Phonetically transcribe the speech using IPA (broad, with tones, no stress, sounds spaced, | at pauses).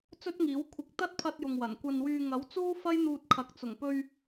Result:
t͡s ɵ˥ t̚ ŋ iː˨˥ w kʷʰ ɪ˨˥ k̚ t̪ ɐ˥ t̚ pʰ ɐ˧ t̚ j ʊ˨ ŋ w ɐ˨˩ n kʷ ɐ˧ n w yː˧ ŋ ɐ˨˥ w t͡s uː˥ f ɐ˥ j n̪ uː˧ t̚ kʰ ɐ˨˥ k̚ t͡s ʊ˨˩ ŋ p ɵ˧ ɥ